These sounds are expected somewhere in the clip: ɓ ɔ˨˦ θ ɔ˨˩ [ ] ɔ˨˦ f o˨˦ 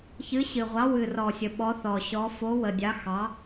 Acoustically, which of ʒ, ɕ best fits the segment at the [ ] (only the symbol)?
ɕ